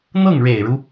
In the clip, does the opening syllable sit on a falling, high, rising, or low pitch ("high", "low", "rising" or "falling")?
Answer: falling